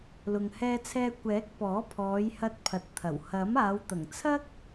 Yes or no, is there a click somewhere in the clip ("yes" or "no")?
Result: no